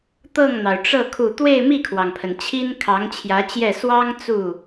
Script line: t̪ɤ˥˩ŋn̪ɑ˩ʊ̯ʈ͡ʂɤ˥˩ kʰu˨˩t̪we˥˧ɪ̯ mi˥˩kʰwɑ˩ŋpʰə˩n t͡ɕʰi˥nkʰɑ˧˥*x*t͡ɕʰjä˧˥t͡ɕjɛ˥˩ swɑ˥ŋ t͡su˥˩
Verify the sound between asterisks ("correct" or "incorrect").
incorrect